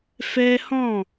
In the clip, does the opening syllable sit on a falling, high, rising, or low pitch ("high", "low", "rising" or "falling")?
high